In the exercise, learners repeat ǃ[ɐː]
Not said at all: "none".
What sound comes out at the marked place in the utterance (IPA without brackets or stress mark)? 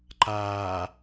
aː